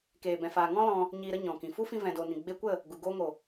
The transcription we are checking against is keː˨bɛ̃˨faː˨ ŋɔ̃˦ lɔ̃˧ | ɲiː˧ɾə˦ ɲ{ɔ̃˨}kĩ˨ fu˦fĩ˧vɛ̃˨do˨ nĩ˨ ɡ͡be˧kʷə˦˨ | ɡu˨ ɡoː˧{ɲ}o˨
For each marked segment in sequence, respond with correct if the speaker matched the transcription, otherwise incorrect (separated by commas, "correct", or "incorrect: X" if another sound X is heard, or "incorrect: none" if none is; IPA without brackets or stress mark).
correct, incorrect: ŋ